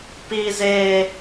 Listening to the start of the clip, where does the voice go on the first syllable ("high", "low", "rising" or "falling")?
high